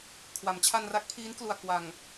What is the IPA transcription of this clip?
kʰwa˩˦mt͡ɕʰa˧nra˦˥k̚pʰiː˦˥n klu˨˩a̯kwa˨˩ŋ

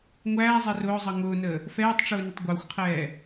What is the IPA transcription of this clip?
ŋʷæːzˤɛ rʊːzˤʌ ŋʊːnəː | fɛːtˤʈ͡ʂʊːnətˤ ɡʷəːxʷqʰɛː

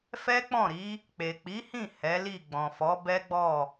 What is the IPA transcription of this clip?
fɛ˦k͡pɔ̃˦˨ɾi˨˦ | k͡pe˨k͡pi˨˦hĩ˦˨ hɛ˨˦li˦˨ ɡ͡bɔ̃˨fɔ˨˦bɛ˦ɡ͡bɔ˦˨

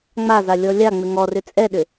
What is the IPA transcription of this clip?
ŋ͡maza lʲɔlʲaŋ͡mʏ ŋɔrʏ t͡sʼɛɗʏ

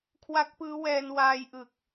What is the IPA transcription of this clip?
kʰwa˦˥k̚pɯː˦˥wɛː˧n waː˧jʔɯ˨˩k̚

